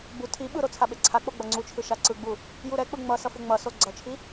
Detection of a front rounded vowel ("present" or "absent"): absent